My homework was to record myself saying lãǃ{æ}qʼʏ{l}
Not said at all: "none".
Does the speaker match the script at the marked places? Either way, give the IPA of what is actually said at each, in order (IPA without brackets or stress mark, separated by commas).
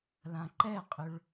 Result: ɛ, ɭ